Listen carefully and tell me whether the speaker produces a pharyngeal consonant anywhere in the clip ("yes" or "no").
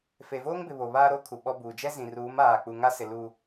no